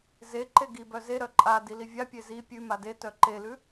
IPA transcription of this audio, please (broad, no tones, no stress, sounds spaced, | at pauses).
z e ǃ e ɡ i b œ z e ɾ œ ǃʼ a d i l i vʲ a pʲ e z i pʲ ʉ m a d e t œ ǃ e l ʉ